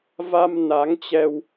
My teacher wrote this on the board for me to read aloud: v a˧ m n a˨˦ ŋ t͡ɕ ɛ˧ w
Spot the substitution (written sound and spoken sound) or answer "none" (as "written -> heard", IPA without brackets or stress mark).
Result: none